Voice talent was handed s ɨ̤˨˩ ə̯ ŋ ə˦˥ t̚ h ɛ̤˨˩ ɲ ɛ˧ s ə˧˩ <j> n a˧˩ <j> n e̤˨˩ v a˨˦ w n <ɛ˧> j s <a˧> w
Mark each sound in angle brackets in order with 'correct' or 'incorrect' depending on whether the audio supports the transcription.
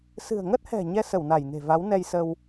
incorrect, correct, correct, incorrect

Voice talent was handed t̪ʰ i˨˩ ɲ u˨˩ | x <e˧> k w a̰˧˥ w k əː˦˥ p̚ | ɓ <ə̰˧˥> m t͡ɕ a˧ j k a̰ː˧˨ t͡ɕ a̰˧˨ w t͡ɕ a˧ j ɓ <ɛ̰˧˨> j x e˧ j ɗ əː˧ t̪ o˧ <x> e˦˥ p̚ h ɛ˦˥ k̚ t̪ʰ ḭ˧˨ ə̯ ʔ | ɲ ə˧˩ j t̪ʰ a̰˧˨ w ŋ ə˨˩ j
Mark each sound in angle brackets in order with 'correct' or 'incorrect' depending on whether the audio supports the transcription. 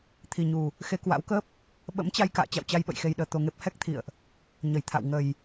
correct, correct, incorrect, incorrect

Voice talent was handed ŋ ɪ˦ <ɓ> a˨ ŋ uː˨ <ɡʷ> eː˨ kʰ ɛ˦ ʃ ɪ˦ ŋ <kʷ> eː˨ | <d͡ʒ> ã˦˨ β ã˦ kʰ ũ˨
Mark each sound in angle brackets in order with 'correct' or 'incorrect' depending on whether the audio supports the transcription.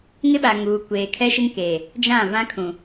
correct, incorrect, incorrect, correct

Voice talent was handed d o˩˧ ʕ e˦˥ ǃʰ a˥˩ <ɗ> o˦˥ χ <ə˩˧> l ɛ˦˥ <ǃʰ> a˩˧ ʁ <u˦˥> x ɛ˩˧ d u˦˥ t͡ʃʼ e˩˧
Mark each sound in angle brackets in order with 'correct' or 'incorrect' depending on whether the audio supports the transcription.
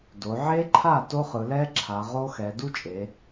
incorrect, incorrect, incorrect, incorrect

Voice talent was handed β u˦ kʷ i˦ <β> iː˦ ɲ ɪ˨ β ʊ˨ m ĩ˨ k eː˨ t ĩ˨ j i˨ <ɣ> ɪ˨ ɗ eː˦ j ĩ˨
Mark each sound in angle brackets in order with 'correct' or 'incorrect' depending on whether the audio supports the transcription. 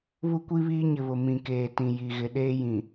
correct, correct

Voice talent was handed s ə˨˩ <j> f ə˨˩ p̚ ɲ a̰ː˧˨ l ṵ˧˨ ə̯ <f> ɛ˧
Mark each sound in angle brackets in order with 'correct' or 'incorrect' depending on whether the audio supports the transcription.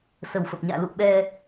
incorrect, incorrect

